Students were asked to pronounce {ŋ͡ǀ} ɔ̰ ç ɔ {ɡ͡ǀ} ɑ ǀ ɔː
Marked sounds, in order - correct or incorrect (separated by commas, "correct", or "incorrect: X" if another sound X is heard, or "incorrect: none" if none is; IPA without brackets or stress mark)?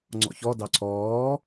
correct, incorrect: d